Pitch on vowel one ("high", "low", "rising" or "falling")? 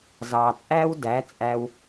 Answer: low